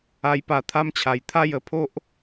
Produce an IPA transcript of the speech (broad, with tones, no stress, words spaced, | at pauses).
a˧jpa˧t̪ʰa˦mt͡ɕʰa˨˩j t̪ʰa˥˧jə˧pʰo˦ʔ